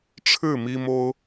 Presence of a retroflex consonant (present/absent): present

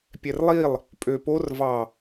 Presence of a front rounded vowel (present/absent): present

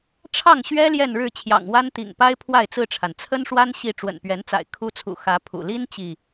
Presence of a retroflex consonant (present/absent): present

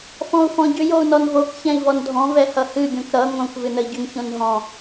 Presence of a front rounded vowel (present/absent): present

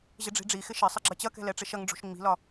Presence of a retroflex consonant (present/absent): present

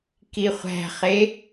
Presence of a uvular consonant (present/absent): present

